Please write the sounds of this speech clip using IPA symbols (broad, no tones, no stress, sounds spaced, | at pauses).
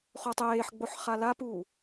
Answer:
χ o tˤ eː ħ ɡ͡b o ħ χ a l a p uː